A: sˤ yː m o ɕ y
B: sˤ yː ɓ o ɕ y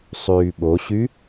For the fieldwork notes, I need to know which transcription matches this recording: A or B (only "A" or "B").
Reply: B